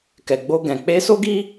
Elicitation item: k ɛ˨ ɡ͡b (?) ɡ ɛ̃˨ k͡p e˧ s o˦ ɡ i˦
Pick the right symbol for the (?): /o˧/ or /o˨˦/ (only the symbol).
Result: o˧